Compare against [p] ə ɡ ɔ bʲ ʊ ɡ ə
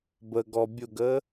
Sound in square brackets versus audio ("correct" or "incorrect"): incorrect